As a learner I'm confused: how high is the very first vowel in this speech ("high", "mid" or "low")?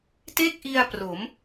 mid